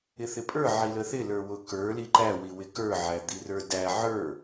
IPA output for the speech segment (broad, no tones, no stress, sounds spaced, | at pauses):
ɪ θ ɪ pʼ ə˞ ʕ i l ə θ ɪ l ə˞ w ʊ k ə˞ l i ǃ æ w i w ɪ k ə˞ ʕ æ d̪ i r ə˞ d æ ʕ ə˞